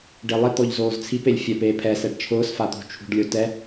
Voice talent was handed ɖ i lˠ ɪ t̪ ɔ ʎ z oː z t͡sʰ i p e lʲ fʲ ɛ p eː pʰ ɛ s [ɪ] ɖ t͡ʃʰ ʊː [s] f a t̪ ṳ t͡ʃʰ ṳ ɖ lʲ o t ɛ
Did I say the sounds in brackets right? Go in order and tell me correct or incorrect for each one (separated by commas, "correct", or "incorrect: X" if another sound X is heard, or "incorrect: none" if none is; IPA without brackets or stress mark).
incorrect: ɛ, correct